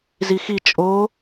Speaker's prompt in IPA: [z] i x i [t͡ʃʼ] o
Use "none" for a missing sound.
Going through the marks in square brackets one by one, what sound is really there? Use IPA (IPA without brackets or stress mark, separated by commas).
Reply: z, t͡ʃʼ